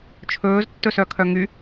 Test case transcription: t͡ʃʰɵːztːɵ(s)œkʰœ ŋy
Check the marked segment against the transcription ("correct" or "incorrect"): correct